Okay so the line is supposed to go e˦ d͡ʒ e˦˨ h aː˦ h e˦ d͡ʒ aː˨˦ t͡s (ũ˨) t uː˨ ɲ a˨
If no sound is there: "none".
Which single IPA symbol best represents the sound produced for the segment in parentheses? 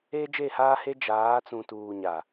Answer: ũ˨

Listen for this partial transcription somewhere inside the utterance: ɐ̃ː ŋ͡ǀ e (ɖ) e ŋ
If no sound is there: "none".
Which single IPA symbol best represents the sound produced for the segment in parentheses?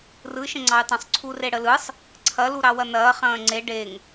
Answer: ɖ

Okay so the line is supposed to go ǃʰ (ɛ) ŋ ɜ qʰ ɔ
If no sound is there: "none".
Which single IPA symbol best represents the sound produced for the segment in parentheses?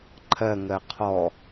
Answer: ɜ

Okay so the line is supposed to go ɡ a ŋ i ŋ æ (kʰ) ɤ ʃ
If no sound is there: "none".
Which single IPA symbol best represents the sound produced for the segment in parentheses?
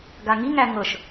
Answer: ŋ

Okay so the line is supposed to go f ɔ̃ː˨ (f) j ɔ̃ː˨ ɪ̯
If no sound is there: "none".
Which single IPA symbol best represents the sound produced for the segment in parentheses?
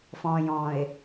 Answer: none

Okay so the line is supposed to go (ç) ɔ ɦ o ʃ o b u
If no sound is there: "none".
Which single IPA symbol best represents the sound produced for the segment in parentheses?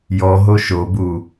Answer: j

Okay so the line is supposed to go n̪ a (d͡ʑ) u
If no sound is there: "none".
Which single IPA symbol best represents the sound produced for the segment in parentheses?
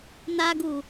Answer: ɡ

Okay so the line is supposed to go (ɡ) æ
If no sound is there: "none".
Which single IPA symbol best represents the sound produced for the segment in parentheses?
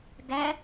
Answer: ɡ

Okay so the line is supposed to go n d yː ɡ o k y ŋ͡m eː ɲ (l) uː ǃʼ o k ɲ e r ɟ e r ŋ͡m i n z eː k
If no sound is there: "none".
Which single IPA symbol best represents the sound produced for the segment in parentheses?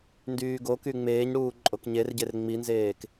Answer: ɽ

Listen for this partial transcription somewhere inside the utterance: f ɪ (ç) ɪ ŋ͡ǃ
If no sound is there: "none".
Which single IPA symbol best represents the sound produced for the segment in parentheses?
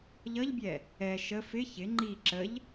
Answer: ç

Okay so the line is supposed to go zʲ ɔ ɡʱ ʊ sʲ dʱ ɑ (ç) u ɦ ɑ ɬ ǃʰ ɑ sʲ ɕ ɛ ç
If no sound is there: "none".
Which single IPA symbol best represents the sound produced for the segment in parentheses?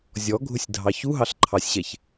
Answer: ç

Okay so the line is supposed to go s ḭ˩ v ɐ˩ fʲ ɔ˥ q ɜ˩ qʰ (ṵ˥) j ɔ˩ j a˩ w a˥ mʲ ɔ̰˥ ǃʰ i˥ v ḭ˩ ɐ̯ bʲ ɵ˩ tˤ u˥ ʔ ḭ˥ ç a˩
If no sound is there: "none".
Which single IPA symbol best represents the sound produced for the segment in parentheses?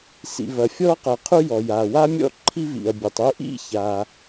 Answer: u˥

